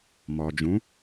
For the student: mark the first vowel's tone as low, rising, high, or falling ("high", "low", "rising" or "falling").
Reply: low